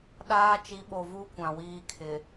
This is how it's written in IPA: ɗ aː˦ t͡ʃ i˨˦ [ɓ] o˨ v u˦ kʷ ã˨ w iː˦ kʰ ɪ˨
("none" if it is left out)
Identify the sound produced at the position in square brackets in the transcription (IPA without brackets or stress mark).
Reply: ɓ